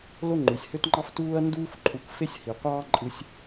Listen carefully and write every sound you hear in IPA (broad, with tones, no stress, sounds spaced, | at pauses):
l o˥ ŋ͡ǃ y˩ sʲ h ø˥ t ŋ͡ǃ ɑ˥ f t uː˥ ɐ̯ n d uː˥ f ǃʼ u˧ k f e˥ sʲ h i˩ qʷ ɑː˥ ǃʼ ɯ˧ sʲ